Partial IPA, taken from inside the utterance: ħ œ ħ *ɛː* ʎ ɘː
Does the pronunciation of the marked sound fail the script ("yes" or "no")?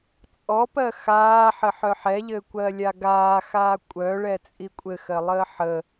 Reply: yes